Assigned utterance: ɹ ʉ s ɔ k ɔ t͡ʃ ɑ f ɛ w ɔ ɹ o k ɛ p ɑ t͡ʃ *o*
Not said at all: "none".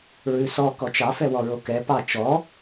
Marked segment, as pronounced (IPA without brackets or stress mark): ɔ